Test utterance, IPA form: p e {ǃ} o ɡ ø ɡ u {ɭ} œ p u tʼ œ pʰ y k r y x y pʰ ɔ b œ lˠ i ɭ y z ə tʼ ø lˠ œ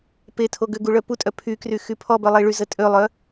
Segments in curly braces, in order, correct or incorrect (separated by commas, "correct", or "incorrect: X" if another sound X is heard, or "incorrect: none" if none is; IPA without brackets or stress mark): incorrect: tʰ, correct